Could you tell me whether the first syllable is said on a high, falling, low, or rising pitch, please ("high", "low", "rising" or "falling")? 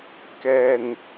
low